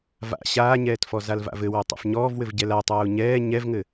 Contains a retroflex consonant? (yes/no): no